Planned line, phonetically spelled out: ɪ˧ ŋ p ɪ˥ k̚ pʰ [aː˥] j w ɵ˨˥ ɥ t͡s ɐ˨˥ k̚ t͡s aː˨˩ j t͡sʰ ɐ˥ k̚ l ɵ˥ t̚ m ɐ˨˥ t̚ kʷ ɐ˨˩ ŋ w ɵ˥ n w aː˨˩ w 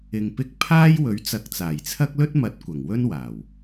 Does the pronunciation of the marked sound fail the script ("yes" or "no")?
no